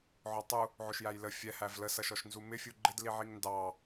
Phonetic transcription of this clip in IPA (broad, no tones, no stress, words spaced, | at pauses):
ʕɔtˤu | ʕʊʃjæjlə fʲɛ hævlə sʌʃɔʃnzumɪ fʲuɡ͡ǃɪd liʕiŋndɑ